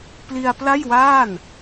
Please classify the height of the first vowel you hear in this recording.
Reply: high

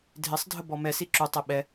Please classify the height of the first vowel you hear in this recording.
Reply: high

